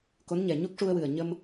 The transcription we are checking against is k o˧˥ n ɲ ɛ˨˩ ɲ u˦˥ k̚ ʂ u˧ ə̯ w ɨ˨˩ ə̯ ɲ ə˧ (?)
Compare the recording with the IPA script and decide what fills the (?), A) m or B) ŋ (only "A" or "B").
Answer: A